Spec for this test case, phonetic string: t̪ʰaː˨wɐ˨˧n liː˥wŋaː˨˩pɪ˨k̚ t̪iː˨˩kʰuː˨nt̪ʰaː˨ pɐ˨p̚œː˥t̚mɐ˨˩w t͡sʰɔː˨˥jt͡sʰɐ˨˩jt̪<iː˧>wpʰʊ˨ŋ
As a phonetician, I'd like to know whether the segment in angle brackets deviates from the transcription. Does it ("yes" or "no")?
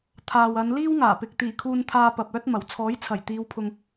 yes